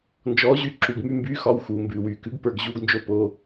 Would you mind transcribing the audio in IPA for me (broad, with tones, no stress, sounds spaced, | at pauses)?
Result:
n d͡ʒ ɔː˨˥ ʑ y˨˥ ǁ u˩˧˩ ɡ m y˦ m b yː˨˥ x ɒ˩˧˩ w x uː˩ m b ʉː˩ w yː˩ k ʉ˨˥ ɡ p ə˞˩˧˩ ɡ ʑ uː˦ ɡ n d͡ʒ o˦ p o˩˧˩